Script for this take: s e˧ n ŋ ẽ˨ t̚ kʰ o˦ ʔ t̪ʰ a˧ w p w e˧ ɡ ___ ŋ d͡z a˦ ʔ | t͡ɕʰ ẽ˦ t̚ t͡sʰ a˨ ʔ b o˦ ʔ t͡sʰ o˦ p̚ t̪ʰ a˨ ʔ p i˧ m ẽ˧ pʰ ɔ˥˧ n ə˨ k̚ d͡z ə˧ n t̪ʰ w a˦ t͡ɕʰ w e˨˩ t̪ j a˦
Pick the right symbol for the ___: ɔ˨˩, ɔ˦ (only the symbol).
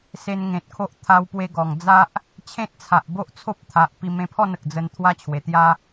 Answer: ɔ˨˩